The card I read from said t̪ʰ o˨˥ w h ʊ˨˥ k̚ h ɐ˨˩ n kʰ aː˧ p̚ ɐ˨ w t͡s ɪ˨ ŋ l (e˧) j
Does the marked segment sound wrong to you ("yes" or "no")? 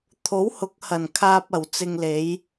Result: yes